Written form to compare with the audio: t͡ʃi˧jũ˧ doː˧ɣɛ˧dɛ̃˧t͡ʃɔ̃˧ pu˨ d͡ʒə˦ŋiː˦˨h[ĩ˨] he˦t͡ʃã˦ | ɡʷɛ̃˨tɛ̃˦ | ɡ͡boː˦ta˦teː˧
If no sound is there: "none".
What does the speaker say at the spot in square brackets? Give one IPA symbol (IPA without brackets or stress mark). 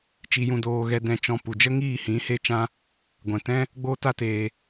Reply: ĩ˨˦